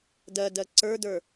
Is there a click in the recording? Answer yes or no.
yes